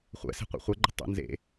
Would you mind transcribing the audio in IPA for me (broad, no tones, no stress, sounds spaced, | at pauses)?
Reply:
χʷ ɛ̰ s e̤ qʷ ɛ̰ χʷ ɛ ɡ͡ǃ ə̤ tˤ ə̰ n z ḛ